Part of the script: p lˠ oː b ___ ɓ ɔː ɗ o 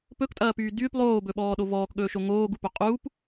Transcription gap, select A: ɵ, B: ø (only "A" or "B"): A